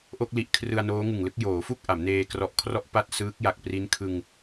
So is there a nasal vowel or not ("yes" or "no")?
no